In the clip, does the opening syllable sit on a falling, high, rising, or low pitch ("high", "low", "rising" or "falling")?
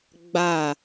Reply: falling